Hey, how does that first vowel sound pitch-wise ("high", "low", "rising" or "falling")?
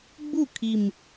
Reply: falling